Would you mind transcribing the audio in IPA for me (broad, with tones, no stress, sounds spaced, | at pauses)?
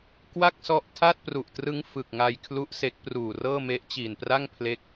k w a˥˩ k̚ s ɔ˦˥ ʔ tʰ a˥˩ t̚ p r u˨˩ ʔ t r ɯ˦˥ ŋ f ɯ˨˩ k̚ ŋ a˧ j kʰ l u˥˩ ʔ s e˦˥ k̚ p r uː˨˩ r ɤː˥˩ m e˦˥ ʔ t͡ɕ iː˨˩ n p r a˥˩ ŋ pʰ l e˦˥ k̚